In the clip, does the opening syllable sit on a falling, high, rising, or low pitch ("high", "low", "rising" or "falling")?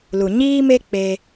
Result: low